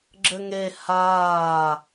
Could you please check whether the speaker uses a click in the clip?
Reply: yes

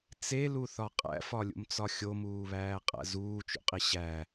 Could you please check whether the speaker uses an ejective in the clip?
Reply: yes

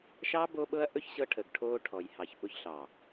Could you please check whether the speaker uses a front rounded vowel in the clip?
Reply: no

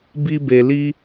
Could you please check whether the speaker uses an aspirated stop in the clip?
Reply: no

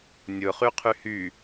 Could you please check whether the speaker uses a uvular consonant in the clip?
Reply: yes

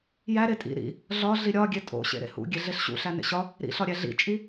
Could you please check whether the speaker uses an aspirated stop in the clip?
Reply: no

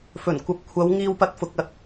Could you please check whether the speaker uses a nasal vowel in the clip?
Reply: no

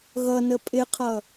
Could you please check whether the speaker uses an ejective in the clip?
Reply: yes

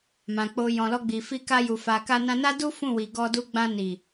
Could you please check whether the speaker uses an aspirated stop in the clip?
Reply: no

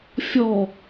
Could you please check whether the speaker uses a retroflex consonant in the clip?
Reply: no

